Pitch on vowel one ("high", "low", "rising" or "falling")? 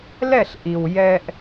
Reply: falling